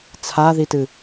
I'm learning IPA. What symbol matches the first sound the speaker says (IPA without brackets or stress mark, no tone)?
t͡sʰ